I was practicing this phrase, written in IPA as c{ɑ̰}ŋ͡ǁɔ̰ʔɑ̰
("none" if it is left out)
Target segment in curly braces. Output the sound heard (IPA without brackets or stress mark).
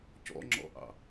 ɔ̰